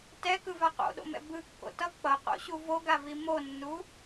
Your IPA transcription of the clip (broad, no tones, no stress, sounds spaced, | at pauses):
t ɛ k ɯ v a q o̰ ɗ o̰ m ɛ̰ b ɯ kː o̰ t ʌ k͡p ʌ q o̰ ɕ u v o ɡ a v i m o nː u